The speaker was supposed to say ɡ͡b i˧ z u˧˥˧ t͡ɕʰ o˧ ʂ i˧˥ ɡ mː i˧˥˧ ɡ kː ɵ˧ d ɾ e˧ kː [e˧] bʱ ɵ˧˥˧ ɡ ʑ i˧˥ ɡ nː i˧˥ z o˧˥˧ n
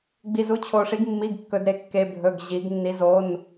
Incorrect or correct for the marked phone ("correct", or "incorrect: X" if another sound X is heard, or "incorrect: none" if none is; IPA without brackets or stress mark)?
correct